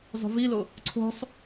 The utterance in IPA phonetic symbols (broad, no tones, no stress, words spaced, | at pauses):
zˤṳvilo | ǀʰo̤sˤ